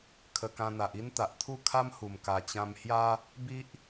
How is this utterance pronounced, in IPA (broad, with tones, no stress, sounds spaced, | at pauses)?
kʰ ə˧ k ã˧ n̪ a˨ ʔ i˦ n t̪ a˨ ʔ t̪ʰ u˥˧ kʰ a˦ m h u˨˩ m k a˨˩ t͡ɕ ã˧ m h j a˦ | b i˦ ʔ